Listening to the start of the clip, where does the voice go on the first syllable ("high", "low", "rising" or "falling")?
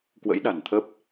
rising